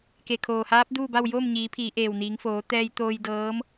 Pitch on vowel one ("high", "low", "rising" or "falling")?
low